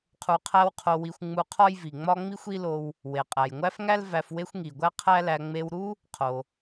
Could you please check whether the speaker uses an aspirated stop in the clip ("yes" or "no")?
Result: yes